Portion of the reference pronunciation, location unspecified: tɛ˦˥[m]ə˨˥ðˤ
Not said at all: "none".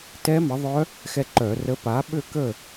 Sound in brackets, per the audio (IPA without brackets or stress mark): m